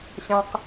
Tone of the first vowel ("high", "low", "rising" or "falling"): low